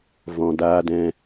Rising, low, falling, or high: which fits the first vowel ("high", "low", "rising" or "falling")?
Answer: low